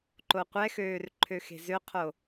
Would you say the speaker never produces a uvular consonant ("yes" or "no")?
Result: no